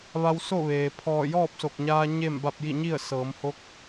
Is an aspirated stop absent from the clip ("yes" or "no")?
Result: no